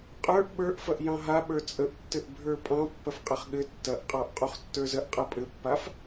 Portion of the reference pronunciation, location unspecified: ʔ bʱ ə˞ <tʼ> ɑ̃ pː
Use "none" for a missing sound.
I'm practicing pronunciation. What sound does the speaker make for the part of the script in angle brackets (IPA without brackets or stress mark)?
pʼ